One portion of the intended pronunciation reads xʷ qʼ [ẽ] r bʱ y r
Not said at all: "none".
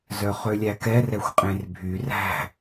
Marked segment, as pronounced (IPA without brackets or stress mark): ẽ